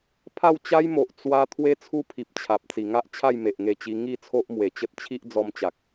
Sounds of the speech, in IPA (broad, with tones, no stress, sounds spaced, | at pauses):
pʰ a˥˧ w t͡ɕ a˦ j m o˨ ʔ t͡s w a˧ t̪ʰ w e˦ t͡sʰ u˦ pʰ i˨ p̚ t͡ɕʰ a˨ p̚ t͡s i˨˩ ŋ a˦ ʔ t͡ɕʰ a˥˧ j m e˨ ʔ ŋ e˧ t͡ɕ i˧ ŋ i˥˧ t͡sʰ o˦ ʔ m w e˨˩ t͡ɕ ə˦ t̚ t͡ɕʰ i˦ ʔ d͡z ɔ˧ m t͡ɕ a˨ k̚